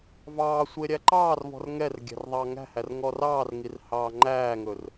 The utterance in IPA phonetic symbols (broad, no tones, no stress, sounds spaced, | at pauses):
v ɑː sʷ e ɾʲ æ ǃ ɑː r v ɔ̤ r ŋ ɛ r ɡʲ æ̤ r ðˤ ɑː ŋ æ̤ h æ r ŋ ɔ r ɑː r ŋ i r h ɑː ŋ͡ǃ æː ŋ ɵ r